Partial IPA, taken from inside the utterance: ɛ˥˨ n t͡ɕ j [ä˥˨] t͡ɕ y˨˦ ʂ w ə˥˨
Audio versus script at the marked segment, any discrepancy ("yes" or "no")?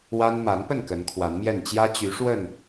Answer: yes